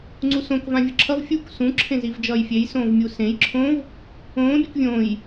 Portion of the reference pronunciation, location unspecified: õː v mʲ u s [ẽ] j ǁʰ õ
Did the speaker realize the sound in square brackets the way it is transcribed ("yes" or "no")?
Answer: yes